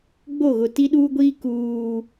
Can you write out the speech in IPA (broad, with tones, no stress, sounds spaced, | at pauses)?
ɡ͡b o˦˨ ɣ ʊ˨ t i˦ ɗ uː˦ ɡʷ iː˦ k uː˦